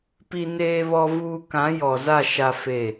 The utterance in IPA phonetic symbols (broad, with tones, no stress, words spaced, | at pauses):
pi˦neː˦βɔ˦vuː˦ kã˨˦jɔ˨za˦˨ ʃa˦fe˦˨